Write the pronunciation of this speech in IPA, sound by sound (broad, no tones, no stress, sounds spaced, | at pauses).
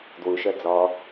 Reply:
d w u ʃ œ d͡z ɔ